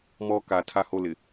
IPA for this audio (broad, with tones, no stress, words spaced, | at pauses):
mɔ˦ka˨˦ tʰa˦ho˦lɪ˨